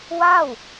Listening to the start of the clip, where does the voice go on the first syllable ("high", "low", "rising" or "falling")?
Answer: falling